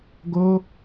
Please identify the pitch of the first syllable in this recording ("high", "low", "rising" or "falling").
high